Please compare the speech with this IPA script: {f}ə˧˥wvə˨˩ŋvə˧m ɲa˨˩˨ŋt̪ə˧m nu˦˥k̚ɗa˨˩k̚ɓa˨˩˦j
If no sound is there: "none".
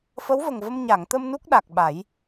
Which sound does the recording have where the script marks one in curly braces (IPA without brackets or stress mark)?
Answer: f